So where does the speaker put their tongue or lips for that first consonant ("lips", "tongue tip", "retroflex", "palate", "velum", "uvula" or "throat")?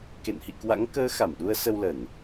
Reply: velum